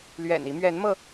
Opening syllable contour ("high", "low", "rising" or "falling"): low